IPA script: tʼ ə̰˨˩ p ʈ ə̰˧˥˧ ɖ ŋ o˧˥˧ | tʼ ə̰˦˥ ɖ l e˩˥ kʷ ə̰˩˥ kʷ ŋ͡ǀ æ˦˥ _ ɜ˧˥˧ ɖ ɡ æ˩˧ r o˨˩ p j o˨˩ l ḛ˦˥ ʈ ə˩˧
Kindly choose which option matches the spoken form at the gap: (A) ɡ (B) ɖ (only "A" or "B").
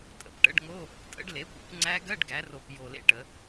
A